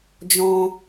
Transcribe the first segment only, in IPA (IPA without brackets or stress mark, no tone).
d͡ʒ